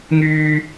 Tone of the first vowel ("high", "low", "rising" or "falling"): low